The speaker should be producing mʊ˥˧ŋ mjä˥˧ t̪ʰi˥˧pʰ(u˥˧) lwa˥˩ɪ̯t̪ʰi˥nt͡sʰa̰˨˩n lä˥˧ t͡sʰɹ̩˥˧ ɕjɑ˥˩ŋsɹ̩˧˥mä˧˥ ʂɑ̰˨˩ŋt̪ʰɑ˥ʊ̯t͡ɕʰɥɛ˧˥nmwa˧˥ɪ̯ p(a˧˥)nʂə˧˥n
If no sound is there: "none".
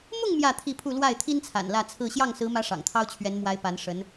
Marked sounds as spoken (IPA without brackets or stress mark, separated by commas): u˥˧, a˧˥